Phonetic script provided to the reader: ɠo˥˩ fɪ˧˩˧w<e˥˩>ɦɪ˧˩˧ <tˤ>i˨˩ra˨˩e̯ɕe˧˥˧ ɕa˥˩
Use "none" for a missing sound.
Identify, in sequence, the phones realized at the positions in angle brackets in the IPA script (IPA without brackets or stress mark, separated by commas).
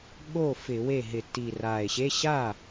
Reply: e˥˩, t